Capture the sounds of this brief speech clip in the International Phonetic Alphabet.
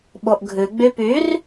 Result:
ɓ o ʔ ɡʱ ʉ ɡ͡b y p y r

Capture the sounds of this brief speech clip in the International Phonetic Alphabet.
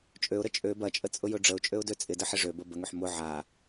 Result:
t͡ʃʼ ø ʊ̯ ɾ ə t͡ʃʼ ø b ɐ t͡ʃʼ ə t͡sʼ ʊ j ʊ ɖ͡ʐ ə ʊ̯ t͡ʃʼ ø ʊ̯ d ø t͡sʼ ɪ d ə ħ ɪ ʐ ø b ə b ə ŋ ø ħ m ʊ ʕ a

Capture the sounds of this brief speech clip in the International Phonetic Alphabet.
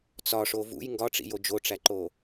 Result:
t͡s ɒ ʂ o v ṵ j ŋ ɡ ɒ ʈ͡ʂ ḭ j o d͡ʒ o ʈ͡ʂ æ ǃ o

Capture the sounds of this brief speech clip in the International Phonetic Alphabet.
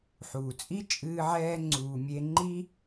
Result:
ħ uː˩ t͡sʼ i˥ t͡ʃʼ ɨː˧ ʕ ɛː˧ ŋ͡ǀ uː˩ mʲ e˧ ŋ͡ǃ i˥

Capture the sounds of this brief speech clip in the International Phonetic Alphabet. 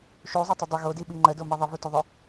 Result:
ʃ u zˤ o tˤ ɵ dˤ ɵ ɣ o d i ɓ i ŋ͡ǃ ə d o m i ðˤ ə v u t ɵ ðˤ ɵ

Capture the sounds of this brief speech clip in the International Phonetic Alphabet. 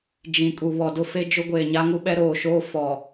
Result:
d͡ʒ ĩ˨ kʼ u˨ β ɔ˨ d ʊ˦ f e˦ d͡ʒ ʊ˦ ɡʷ eː˨ ɲ a˦ ŋ u˦ ɓ ɛ˦ ɾ oː˨ ʃ oː˦ f ɔ˨

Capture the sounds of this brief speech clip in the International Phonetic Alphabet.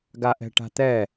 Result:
ɡ a ʔ ɛ̤ ʈ a̤ t̪ ɛ

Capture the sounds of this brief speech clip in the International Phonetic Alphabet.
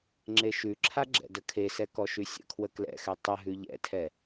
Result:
ŋ͡ǁ e ʃ ʉ ǁʰ a ɡ͡ǁ ɛ̰ d ə kʰ e s ɛ k ɔ ʃ ʉ sʲ ə̰ kʰ w ə k l ɛ̰ x ɛ tˤ ə ɦ ʉ ʎ ɛ̰ tʰ ɛ

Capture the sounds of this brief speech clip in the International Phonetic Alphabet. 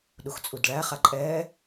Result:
ɗ u x t͡sʼ u d ɭ æ χ a ǃʼ ɛː

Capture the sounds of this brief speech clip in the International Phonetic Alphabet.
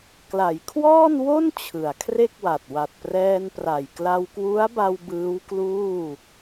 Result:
k l a˩˦ j kʰ w ɔː˥˩ n w o˥˩ n t͡ɕʰ ɯ˩˦ a̯ kʰ r e˥˩ k̚ w a˨˩ t̚ w a˨˩ t̚ p r ɛː˧ n p r a˨˩ j k l a˧ w k w u˦˥ a̯ b a˧ w b ɯː˦˥ w k l uː˥˩

